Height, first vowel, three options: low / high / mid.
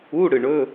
high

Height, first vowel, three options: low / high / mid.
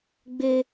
mid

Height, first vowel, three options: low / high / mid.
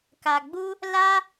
low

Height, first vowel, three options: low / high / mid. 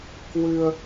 high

